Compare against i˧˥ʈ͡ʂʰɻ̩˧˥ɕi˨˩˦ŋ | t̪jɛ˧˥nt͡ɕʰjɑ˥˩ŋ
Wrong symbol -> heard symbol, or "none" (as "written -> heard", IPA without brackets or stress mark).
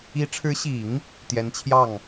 none